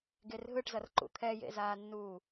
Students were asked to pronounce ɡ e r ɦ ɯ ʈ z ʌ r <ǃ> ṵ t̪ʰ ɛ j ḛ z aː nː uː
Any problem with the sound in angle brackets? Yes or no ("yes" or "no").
no